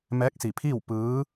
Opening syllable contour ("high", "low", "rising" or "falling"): rising